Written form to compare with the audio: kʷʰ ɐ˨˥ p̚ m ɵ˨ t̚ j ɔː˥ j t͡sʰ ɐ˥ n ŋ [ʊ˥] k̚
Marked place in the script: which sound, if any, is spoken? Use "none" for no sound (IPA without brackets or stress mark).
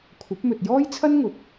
ʊ˨˥